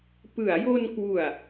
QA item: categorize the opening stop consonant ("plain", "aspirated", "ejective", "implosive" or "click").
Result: plain